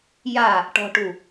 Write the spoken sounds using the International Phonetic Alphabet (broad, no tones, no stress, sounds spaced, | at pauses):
j a | ʈ ɔ̤ ʈ u